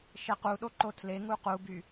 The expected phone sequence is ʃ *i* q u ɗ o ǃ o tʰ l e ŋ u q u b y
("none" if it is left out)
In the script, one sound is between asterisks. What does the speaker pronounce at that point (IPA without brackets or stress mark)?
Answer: e